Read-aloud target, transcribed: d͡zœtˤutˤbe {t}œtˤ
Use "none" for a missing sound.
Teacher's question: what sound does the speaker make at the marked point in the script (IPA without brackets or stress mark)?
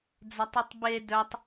d